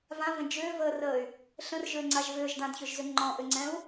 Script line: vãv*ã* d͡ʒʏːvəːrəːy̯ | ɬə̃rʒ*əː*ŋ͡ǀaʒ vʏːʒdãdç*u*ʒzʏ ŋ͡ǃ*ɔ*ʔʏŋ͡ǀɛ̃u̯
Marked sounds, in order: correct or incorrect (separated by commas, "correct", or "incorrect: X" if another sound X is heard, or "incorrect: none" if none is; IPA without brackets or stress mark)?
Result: incorrect: ə̃, incorrect: ʏː, incorrect: ʏ, incorrect: ɔ̃